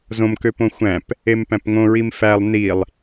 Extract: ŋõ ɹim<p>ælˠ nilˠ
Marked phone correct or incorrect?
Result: incorrect: f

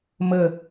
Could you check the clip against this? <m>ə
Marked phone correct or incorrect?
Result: correct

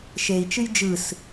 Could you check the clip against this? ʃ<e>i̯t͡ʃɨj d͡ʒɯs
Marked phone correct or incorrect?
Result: correct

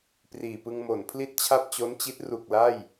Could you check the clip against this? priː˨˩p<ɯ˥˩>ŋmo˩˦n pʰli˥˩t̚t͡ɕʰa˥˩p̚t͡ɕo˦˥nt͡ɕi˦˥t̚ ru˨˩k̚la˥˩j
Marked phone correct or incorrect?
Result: incorrect: ɯ˧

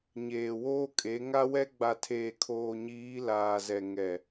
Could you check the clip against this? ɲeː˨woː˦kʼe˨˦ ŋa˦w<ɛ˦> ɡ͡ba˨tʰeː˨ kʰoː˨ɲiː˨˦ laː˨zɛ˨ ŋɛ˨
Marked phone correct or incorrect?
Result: correct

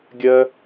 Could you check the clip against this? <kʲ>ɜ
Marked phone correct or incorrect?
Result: incorrect: ɡʲ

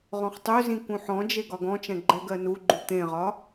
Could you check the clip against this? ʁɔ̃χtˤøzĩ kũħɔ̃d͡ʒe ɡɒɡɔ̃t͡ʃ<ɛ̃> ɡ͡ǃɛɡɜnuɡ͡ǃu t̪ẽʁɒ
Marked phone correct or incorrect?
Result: correct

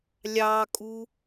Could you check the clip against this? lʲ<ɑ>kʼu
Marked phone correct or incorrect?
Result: correct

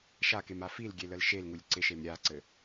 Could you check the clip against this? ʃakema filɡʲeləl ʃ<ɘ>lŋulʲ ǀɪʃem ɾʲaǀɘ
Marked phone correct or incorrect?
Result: incorrect: e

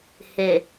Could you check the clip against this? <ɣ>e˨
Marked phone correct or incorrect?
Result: incorrect: h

